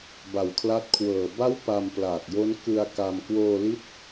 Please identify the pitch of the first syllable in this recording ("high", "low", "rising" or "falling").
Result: low